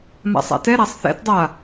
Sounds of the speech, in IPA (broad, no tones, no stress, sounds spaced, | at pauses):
m a̰ sˤ a̰ t ɛ ɾ a sˤ θ ɛ̰ t dˤ a